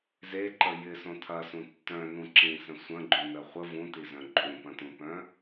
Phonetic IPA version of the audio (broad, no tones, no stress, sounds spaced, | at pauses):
z e ǃ ə j ɪ s õ tʰ ɐ s ũ tː œ̃ n ũ ǁ ĩ s ə̃ sʷ ə̃ ɡ͡ǃ ũ n ə χʷ ə v ũ t i z œ̃ ǃʼ ũ p ɐ̃ t ũ p œ̃